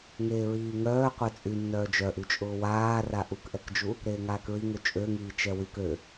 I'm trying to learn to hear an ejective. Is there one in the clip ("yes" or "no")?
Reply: yes